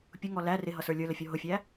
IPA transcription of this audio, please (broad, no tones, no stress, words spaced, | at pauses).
pʲʊŋɔ læ rɪɦʌsə˞ lʲə˞ləfʲɔ ɦʊfʲæ